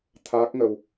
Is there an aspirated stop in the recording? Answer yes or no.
yes